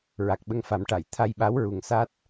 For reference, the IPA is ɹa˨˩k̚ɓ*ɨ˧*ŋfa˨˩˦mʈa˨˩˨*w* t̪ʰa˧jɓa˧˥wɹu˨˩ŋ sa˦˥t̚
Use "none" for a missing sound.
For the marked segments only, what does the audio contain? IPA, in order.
ə˧, j

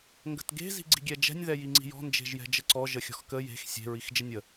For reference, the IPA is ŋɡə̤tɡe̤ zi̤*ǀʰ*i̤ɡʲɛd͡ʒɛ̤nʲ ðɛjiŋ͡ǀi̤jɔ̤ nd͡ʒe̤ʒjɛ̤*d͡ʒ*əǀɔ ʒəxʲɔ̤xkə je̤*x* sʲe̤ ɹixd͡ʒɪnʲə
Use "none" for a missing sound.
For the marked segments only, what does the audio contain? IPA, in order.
ɡ͡ǀ, d͡ʒ, x

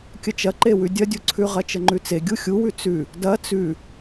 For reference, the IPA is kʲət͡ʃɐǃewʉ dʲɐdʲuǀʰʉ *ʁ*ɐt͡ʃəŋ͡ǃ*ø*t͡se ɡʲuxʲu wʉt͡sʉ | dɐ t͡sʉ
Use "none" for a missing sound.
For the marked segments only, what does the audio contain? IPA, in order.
ʁ, ʉ

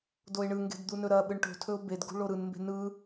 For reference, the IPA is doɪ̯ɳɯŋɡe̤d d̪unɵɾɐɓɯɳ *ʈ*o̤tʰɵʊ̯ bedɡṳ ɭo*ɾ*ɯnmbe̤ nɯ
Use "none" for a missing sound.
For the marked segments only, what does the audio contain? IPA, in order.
ʈ, ɾ

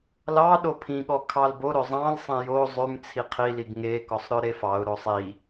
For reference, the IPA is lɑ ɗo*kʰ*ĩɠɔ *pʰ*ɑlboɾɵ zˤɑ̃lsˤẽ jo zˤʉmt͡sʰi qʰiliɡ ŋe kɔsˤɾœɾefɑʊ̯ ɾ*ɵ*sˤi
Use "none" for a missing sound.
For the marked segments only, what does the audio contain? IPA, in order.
pʰ, kʰ, o

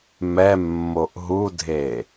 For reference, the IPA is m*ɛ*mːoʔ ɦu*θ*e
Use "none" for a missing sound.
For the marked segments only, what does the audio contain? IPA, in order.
ɛ, dʱ

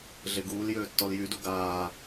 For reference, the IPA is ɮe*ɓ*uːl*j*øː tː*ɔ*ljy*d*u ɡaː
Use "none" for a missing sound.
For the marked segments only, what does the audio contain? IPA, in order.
ɡ, j, ɔ, d

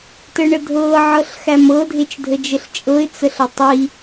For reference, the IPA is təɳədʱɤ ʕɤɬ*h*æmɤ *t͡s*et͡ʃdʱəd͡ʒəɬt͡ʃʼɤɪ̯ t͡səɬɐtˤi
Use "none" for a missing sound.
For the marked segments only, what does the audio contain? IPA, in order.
x, dʱ

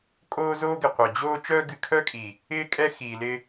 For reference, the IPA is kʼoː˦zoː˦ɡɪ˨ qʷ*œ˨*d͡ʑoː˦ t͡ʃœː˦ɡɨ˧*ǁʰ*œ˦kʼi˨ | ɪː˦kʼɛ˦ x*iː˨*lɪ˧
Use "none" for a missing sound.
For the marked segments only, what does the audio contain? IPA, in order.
œ˨, kʰ, iː˨

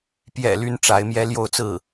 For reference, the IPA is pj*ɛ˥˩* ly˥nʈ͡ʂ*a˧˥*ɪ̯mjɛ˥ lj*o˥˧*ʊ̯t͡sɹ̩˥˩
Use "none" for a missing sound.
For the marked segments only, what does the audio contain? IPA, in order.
ɛ̰˨˩, a˧˥, o˥˧

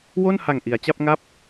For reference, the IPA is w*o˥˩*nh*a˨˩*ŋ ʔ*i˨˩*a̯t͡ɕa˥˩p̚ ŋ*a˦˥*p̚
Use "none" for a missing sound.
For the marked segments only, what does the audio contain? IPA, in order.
o˥˩, a˨˩, i˩˦, a˦˥

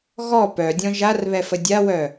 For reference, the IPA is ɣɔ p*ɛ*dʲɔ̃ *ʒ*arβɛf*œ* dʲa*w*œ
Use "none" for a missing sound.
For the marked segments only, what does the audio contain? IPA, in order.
œ, ʒ, ə, w

